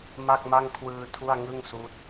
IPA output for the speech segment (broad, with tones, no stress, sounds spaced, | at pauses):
m a˥˩ k̚ m a˥˩ ŋ kʰ w ɯː˧ tʰ u˥˩ a̯ ŋ ɯ˥˩ ŋ s uː˦˥ t̚